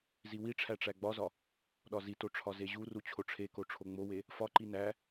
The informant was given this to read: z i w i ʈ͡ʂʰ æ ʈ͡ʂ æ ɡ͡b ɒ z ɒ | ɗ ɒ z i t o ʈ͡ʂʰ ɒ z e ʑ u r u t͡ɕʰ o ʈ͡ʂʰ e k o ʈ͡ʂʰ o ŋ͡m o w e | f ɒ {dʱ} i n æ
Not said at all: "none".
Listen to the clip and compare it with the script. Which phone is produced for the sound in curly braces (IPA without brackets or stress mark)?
ǃ